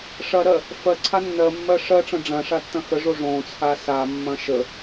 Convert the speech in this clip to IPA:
ʂ ɐ ɾ ɜ | f ɜ ǀʰ a nː ɜ mː ɜ ʂ ɜ ʈ͡ʂ ɐ̃ ɖ͡ʐ ɐ̃ ʂ a tː ɐ̃ x ə ʐ o ʐ õ t͡sʰ a s a mː ɐ̃ ʃ ə

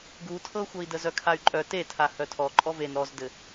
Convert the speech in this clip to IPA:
ɡ u tʰ ɤ xʷ ɤ i̯ d ə z œ kʰ a y̯ ǃʼ œ t e tʰ a h œ tʰ ɔ ǃʼ ɔ v e n ɾ ɔ z d ɘ

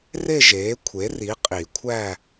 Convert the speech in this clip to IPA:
r e˥˧ ʒ eː˩˥ kʷʰ e˩˥ r i˩˥ qʼ i˨˩˦ kʷʰ æ˥˧

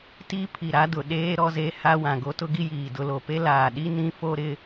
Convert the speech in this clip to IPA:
t i˦ pʰ i˨ ɾ a˦ d ʊ˨ ɗ eː˦ ɾ ɔ˦ z e˦ h a˦ w ã˨ ɡ o˦ t ʊ˦ ɡ i˦ j iː˨ d ʊ˦ l o˨ p e˦ l aː˨ ɗ i˦ n ĩ˦ f o˦ ɾ ɪ˦

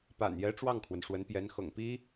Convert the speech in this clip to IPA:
p a̰˨˩ n j ɛ˧˥ ʈ͡ʂ w ɑ˥˩ ŋ kʰ w ə˩ n ʂ w ə˧˥ n p j ɛ˧˥ n x ɤ̰˨˩ ŋ p i˥

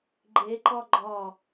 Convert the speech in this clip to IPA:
ɡ͡ǃ e ǃ ɒ ɡ͡ǃ ɒ

